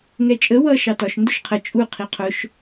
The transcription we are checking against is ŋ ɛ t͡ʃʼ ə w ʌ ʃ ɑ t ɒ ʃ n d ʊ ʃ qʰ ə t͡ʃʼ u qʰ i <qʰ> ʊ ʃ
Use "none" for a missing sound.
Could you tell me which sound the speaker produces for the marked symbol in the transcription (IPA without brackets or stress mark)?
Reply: qʰ